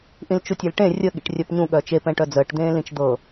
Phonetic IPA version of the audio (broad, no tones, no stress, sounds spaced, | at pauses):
ʔ ĩ l t͡ʃ u tʲ e l ʈ ẽ rʲ ə ɠ ḭ ʈ rʲ œ p ɲ ũ ɠ œ t͡ʃ e p ɛ̃ ʈ œ d͡z əː ʈ d̪ ẽː l ĩ t͡ʃ d̪ ɤ